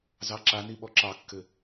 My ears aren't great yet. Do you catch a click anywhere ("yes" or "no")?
yes